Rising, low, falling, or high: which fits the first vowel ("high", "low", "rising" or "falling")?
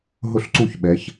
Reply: falling